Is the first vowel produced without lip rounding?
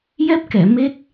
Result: yes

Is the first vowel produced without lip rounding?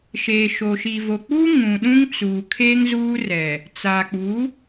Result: yes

